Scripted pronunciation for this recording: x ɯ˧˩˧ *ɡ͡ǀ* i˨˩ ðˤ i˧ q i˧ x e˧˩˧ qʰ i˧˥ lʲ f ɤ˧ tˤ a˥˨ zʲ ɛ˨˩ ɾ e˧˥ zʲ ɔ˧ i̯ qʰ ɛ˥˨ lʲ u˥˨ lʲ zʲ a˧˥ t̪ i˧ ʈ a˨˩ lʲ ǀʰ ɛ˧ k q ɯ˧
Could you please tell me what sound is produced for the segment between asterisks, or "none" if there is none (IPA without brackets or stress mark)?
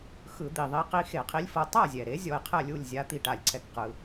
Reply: d̪